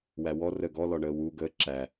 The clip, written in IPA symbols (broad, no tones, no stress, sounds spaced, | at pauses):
w æ w ɔ r ə ɡ ɔ l ɔ ɳ əː w u ɡ əː ǁ æ